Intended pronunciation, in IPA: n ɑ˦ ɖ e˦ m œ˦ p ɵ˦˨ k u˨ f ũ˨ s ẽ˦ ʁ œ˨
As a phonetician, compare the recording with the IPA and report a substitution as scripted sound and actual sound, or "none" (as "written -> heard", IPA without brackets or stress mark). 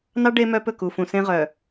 none